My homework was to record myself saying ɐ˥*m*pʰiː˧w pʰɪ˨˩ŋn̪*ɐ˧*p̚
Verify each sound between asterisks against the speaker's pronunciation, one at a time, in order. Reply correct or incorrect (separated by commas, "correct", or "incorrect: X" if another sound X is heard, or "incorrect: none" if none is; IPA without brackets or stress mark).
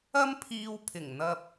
correct, correct